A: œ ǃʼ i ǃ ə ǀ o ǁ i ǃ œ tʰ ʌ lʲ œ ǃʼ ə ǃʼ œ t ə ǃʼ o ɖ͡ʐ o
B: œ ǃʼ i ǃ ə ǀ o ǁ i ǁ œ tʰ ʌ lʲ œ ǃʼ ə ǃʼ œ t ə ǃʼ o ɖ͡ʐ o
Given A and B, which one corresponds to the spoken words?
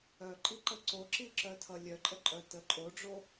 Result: B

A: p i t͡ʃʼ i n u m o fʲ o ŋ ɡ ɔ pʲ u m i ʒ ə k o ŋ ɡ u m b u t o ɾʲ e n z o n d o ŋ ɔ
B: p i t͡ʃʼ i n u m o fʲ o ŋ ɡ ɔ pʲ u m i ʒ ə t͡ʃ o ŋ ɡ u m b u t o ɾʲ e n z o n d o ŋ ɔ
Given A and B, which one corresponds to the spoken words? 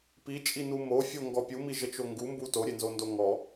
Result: B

